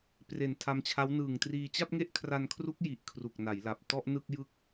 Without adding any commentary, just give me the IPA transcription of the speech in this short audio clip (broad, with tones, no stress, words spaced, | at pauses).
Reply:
pre˨˩n tʰa˧mt͡ɕʰa˦˥w nɯː˨˩ŋtriː˧ t͡ɕa˥˩p̚ŋe˥˩ʔkʰra˧nkʰru˦˥k̚ ji˨˩ʔ kʰru˨˩k̚na˩˦jla˨˩p̚ tɔ˥˩ʔnɯ˥˩k̚jɯ˥˩k̚